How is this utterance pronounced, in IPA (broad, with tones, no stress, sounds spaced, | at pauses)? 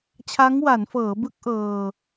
t͡ɕʰ a˦˥ ŋ w a˩˦ n f ɤː˩˦ b ɯ˦˥ k̚ ʔ ɤː˧